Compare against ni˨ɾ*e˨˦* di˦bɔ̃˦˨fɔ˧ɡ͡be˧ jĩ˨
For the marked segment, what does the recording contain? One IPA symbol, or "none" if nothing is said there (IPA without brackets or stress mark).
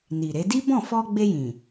e˨˦